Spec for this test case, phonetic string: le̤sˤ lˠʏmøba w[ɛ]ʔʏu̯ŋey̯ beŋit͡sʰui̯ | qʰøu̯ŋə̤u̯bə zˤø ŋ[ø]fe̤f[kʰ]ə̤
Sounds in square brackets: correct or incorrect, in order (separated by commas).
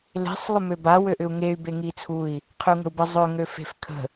incorrect, correct, correct